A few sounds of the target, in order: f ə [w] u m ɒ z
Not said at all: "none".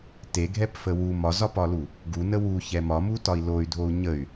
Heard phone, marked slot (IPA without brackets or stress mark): w